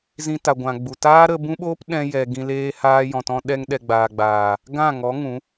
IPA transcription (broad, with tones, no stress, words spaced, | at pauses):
zĩ˧ta˨ ɡʷã˨ɡ͡bu˨ taː˦ɾə˧bũ˦ɓoː˦p ɗɛ̃˧jɛ˨ ɡĩ˧ leː˧haː˧ jɔ̃˨tɔ̃˧ ɗɛ˧ŋɗɛ˨ɡ͡baː˨ɡ͡baː˨ | ɡã˦˨ŋɔ˨˦ ŋũ˨˦